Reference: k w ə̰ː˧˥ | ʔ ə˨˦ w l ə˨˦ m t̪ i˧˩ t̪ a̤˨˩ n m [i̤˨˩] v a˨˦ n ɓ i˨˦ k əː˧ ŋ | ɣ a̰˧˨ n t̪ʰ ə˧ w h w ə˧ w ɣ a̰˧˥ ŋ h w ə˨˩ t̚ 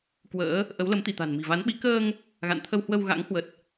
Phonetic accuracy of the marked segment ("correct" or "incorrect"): correct